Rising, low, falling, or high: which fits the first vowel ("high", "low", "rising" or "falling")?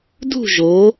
falling